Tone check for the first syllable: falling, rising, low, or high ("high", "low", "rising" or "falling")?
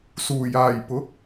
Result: low